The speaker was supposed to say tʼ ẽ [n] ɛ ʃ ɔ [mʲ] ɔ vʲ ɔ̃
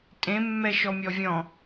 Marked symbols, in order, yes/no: no, yes

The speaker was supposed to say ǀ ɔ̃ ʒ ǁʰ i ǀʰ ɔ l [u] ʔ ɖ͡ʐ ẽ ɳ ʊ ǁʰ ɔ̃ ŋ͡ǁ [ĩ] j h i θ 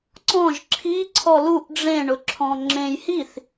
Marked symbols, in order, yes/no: yes, no

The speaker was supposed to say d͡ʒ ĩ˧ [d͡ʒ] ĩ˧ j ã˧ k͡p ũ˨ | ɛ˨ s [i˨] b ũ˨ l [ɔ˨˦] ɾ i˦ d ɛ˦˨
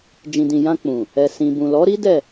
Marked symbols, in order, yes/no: no, no, yes

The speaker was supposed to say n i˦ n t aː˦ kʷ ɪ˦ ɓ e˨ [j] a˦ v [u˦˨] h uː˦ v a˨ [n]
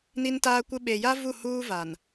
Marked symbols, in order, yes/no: yes, yes, yes

